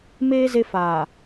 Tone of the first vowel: high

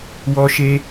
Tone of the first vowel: high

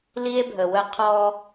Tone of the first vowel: high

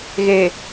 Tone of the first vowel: low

